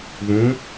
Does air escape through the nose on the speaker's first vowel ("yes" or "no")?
yes